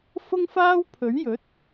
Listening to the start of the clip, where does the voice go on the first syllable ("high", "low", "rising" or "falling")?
high